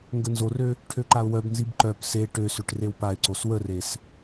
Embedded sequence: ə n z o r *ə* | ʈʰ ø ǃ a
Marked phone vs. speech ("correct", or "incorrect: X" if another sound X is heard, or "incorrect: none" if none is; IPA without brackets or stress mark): incorrect: ø